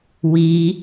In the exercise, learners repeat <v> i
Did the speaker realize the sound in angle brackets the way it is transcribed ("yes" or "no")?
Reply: no